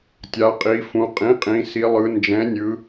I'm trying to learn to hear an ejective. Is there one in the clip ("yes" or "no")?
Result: yes